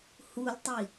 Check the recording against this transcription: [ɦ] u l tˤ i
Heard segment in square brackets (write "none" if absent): h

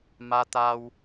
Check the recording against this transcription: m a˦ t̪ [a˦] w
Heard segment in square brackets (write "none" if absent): a˦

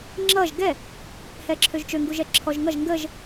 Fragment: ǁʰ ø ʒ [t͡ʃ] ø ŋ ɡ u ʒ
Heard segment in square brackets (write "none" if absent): t͡ʃ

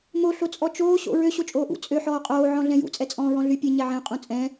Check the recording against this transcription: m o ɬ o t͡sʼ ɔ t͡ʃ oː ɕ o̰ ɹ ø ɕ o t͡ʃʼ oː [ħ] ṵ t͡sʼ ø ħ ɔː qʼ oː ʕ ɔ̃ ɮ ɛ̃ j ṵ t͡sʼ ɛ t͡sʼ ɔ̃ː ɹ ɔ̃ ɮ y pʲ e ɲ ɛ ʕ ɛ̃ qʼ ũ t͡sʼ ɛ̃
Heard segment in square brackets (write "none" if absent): ʔ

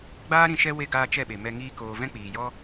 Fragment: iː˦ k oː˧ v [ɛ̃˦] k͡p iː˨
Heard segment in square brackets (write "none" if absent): ɛ̃˦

